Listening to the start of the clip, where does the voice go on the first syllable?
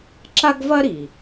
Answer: high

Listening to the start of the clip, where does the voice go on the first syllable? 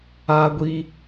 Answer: high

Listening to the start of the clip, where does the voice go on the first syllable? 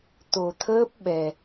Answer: low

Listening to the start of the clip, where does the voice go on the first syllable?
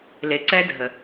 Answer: low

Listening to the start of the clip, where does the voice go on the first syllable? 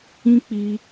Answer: high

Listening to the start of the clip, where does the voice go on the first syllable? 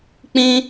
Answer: high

